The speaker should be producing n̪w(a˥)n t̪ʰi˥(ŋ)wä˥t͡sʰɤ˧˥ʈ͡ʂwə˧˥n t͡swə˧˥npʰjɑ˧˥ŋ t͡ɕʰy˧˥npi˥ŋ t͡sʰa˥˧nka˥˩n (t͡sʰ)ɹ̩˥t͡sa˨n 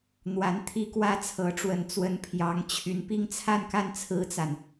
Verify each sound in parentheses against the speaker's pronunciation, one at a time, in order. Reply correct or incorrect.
incorrect: a˧˥, incorrect: k, correct

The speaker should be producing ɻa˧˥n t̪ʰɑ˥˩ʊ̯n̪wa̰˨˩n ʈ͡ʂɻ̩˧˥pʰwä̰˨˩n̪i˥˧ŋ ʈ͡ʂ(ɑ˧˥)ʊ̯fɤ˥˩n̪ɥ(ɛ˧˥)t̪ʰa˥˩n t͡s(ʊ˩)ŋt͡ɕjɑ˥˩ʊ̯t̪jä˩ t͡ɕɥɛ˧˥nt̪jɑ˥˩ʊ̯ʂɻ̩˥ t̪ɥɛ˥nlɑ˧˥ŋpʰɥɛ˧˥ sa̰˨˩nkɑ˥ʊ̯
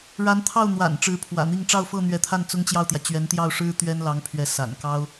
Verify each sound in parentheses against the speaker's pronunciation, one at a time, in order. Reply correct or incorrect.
incorrect: ɑ˥˧, correct, incorrect: ʊ˥

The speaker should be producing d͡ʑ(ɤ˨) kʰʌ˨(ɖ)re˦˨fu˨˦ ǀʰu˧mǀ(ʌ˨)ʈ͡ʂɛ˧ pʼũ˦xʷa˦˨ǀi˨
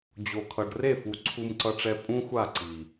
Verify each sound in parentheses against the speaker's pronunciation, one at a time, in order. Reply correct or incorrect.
incorrect: o˨, correct, incorrect: ʌ˧

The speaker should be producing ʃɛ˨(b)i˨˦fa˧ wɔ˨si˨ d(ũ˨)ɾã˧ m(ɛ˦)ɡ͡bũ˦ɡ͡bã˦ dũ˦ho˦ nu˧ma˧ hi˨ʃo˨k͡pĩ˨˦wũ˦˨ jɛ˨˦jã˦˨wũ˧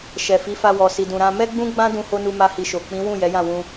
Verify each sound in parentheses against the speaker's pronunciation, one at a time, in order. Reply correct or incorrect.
incorrect: f, correct, correct

